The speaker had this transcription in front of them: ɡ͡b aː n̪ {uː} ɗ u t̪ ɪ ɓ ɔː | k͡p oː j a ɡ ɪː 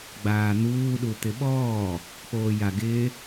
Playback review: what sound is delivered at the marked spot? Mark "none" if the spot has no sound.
uː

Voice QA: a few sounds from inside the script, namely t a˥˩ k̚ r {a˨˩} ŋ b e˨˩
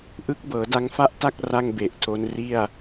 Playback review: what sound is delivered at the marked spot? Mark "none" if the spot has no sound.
a˥˩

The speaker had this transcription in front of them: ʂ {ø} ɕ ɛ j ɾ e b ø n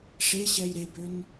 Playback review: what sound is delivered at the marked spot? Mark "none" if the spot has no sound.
e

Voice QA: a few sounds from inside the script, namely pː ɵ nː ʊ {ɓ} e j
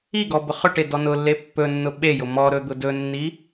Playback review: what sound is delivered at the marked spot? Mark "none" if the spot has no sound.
ɓ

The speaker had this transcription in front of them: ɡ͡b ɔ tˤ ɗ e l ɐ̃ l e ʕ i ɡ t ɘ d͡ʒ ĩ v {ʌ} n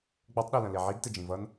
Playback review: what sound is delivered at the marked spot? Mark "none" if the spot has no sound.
ʌ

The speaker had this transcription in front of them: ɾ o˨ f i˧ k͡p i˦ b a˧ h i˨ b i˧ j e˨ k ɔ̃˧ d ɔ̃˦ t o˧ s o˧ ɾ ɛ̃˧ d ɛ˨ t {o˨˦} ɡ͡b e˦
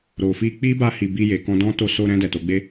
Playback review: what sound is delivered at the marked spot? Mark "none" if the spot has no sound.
o˨˦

